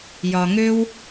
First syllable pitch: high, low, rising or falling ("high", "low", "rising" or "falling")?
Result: low